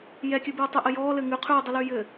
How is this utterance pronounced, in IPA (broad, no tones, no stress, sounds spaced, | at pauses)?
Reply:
j ɛ kʲ ʉ b ʉː tˤ y ʔ ɘ j ɔː l ɘː ŋ ʉ qʰ ʉː dˤ y l ʉː j ɘ